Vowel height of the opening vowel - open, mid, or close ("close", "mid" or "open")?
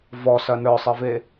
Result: mid